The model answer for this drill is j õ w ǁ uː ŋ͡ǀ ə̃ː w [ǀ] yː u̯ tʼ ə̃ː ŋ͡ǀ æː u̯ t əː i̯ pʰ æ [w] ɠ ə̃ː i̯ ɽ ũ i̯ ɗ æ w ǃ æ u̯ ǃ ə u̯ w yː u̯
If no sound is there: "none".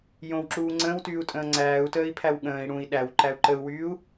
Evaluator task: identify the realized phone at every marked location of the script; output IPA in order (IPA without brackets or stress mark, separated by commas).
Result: t, w